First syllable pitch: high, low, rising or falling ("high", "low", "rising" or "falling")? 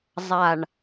low